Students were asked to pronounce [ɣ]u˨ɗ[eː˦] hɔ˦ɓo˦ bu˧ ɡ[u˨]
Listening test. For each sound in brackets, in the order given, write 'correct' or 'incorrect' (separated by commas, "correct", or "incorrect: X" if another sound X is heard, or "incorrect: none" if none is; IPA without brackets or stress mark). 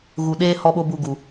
correct, correct, correct